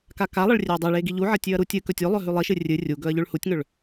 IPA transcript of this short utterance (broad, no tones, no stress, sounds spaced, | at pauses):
k a k a lˠ ɐ ɭ rʲ e ɐ̯ dˤ e ɭ e ɡ i ʎ u ʕ ɐ tʲ ʉ ɐ̯ ɾ u tʲ ɨ k ɵ tʲ o lˠ ɵ ɦ ʉ lˠ i ʃ ɨ rʲ ɨ rʲ u ɡ ɵ ɐ̯ ʎ ʉ ɭ h u tʲ ŋ ɵ ɭ